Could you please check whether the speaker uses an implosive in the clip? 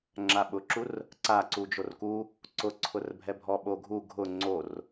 yes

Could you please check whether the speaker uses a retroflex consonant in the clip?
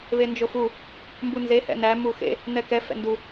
no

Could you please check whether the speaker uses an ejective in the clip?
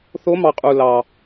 yes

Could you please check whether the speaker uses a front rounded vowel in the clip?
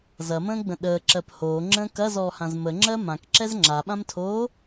no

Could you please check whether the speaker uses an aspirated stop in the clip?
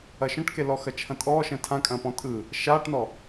yes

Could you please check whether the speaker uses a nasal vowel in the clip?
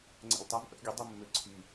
no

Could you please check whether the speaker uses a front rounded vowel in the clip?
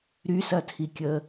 yes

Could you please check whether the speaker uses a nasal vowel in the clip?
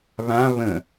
yes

